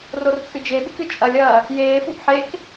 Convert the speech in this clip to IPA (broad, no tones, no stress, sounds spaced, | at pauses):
r o r t͡sʼ ɨ d͡ʒ e ɓ ɨ k ɨ t͡ʃʼ ɐ lʲ ɐː | j eː f u ʔ ħ e k